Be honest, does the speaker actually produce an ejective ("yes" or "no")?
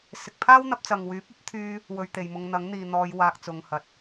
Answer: no